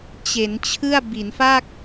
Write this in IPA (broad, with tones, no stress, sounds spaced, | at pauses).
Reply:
t͡ɕ e˩˦ n t͡ɕʰ ɯ˥˩ a̯ b i˩˦ n f a˥˩ k̚